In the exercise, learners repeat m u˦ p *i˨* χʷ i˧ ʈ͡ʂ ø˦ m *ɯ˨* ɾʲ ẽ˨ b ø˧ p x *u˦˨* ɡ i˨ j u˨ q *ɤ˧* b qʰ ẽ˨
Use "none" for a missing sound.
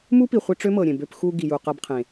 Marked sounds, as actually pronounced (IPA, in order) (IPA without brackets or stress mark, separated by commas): i˨, ɤ˨, u˧, ɤ˧